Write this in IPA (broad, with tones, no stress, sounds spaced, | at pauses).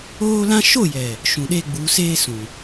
oː˦ l ã˦ ʃ o˦˨ j ɛ˨ | ʃ ũ˨ ɗ e˦ ɡ͡b uː˨˦ s eː˦ s ũ˨